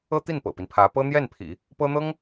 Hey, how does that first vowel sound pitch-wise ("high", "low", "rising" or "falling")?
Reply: high